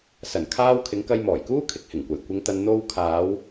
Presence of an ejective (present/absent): absent